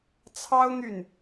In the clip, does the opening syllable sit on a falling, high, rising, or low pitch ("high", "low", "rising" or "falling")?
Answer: high